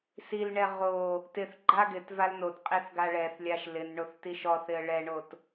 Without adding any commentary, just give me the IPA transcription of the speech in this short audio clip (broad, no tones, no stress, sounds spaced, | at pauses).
s i l ɳ ɛ ʁ o | t ɪ θ ɡ͡ǃ a ɡ ɪ t v a l n o t qʼ i θ ɡ a ɭ ɛ θ lʲ a ʃ l ɪ n ɳ o θ t i ʃ ɔ θ ɪ ə̯ ɭ ɛ ɳ o t